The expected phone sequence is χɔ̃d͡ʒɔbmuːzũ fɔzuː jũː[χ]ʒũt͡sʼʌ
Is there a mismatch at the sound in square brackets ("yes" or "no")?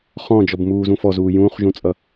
no